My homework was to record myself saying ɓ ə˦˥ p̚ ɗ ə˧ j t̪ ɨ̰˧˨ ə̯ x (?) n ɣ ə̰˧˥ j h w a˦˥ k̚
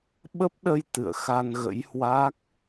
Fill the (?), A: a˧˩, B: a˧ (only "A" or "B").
B